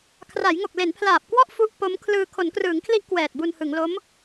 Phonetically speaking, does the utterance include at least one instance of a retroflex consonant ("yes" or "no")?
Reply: no